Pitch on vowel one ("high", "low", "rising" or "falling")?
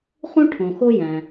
high